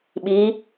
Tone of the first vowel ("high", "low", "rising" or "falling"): rising